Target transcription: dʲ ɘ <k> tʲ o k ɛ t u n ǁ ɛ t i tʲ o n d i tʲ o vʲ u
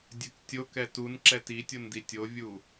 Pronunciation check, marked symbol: correct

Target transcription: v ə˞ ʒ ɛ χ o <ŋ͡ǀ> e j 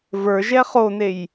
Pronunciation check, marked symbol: incorrect: n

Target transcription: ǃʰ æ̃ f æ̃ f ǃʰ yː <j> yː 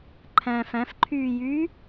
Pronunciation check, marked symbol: correct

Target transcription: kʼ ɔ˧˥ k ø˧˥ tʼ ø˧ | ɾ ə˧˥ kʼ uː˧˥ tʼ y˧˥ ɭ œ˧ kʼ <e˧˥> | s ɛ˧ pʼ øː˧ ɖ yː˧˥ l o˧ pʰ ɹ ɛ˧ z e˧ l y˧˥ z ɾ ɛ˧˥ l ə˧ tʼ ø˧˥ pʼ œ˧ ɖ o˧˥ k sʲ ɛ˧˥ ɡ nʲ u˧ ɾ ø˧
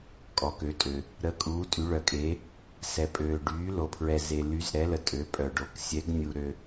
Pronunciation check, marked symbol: correct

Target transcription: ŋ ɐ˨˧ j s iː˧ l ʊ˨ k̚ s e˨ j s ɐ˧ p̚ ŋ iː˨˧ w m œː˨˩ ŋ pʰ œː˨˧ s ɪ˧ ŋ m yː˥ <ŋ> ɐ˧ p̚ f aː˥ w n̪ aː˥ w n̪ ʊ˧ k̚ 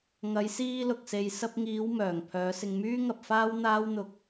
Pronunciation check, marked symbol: correct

